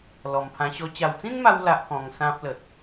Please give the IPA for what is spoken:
l ɔ˨˩ m pʰ ã˧ ɕ ɔ˧ t͡ɕ a˨˩ w t͡s ĩ˦ n m a˧ w l a˦ ʔ k ɔ̃˧ ŋ s ã˦ p̚ l ə˨ t̚

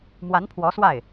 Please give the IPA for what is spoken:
m w a˧˥ n pʰ w ɔ˧˥ s w a˥˩ ɪ̯

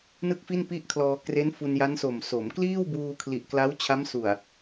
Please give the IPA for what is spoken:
n ɯ˥˩ k̚ f i˥˩ n p i˥˩ ʔ kʰ l ɔː˧ k r e˦˥ n f u˧ n j a˦˥ n s o˨˩ m s o˩˦ m k l iː˥˩ w b uː˧ kʰ l i˨˩ ʔ k l a˦˥ w t͡ɕʰ a˦˥ m s u˨˩ a̯

